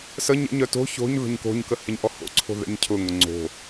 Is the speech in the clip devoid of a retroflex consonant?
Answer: yes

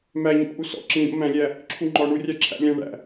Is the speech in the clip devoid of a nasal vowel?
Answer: no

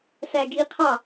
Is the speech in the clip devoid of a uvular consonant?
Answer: no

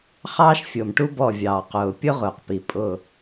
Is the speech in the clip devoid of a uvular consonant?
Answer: no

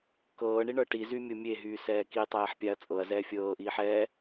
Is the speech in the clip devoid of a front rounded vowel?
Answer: no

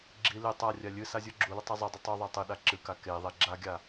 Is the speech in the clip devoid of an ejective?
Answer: yes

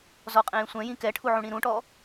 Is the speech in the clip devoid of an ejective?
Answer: no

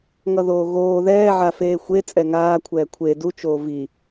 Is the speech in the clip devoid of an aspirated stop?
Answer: no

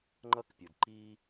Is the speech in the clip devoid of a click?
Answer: no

